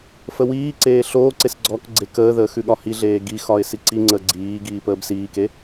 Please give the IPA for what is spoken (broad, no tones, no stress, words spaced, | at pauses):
fəwiːǀeː ɬoːǀes ɡ͡ǀɔkɡ͡ǀe kəːðəː xʉɠɒhiɮeː ɡixɒɪ̯ siǀiŋ͡ǀəː ɡ͡ǀiː ɡiːpəːbsiːke